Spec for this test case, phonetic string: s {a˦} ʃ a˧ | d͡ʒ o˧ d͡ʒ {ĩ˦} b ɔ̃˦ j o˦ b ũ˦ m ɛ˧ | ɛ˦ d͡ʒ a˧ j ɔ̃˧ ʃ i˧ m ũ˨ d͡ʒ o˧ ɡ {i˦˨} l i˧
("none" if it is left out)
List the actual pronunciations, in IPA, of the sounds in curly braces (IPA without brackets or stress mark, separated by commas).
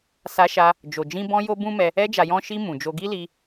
a˧, ĩ˦, i˦